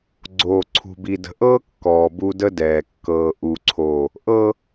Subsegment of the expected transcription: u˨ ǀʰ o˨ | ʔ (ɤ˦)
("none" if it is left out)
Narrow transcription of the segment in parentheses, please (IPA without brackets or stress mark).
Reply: ɤ˦